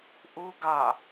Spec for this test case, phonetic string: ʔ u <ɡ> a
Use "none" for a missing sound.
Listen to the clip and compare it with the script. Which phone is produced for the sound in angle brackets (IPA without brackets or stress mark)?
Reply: ɡ